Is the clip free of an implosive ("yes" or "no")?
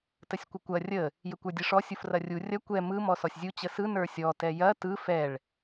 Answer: yes